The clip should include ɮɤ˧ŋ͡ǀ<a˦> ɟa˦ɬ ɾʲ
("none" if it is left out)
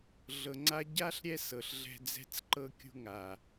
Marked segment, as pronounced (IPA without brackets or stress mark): a˦